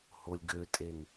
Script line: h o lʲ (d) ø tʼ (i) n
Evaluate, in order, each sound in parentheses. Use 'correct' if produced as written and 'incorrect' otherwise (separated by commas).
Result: incorrect, incorrect